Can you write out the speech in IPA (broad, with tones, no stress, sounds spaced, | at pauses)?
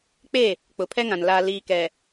k͡p e˦˨ | k͡p ʊ˨ pʰ ɛ˦ ŋ ã˨ n l aː˨ l iː˨ k ɛ˨